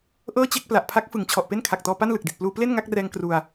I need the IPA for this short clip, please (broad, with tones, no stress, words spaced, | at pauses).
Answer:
ʔɤː˥˩t͡ɕe˥˩k̚ pla˨˩ʔpʰa˦˥k̚fɯ˩˦ŋ t͡ɕʰɔ˨˩ʔpe˥˩nkʰa˨˩k̚tɔː˧ pa˥˩nlɯ˨˩k̚di˨˩t̚pluː˧ ple˥˩nŋa˥˩k̚rɛː˧ŋ kru˧a̯